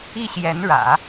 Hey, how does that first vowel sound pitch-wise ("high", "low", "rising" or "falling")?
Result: falling